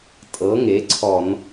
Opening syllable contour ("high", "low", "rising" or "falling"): rising